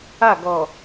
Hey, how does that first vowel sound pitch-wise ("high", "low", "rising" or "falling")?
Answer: falling